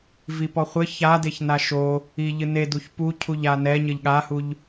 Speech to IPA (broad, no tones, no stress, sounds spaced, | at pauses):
v i p ɔ χʷ ɘ ç a d e ç n a ʃ o | i ʎ ɨ n e d u ç p u cʰ u ʎ a n ɛ ɲ ɘ ʎ ɠ a h u ʎ